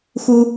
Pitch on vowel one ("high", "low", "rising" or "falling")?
high